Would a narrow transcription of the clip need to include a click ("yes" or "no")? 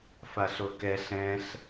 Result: no